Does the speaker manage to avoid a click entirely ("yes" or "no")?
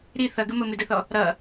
yes